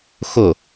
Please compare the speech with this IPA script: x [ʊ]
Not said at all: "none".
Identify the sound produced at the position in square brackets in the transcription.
ʊ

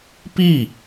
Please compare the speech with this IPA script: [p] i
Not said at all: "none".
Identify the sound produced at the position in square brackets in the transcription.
p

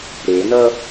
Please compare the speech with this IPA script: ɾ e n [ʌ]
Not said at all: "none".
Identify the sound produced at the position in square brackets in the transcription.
ʌ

